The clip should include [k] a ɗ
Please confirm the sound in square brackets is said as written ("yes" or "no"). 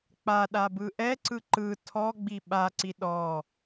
no